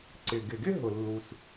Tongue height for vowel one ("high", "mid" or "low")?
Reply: high